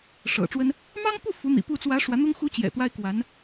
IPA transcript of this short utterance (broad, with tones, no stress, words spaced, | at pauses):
ʂɤ̰˨˩ʈ͡ʂwə˥n | mɑ˥ŋpu˥˩ fu˧˥n̪ḭ˨˩pu˥˩ t͡swä˧˥ ʂwä˧˥n̪ʊ˥ŋ xu˧˥ t͡ɕjɛ̰˨˩t̪wa˥ɪ̯ kwa˧˥n